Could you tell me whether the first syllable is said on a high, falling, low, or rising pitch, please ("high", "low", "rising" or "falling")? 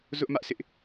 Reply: high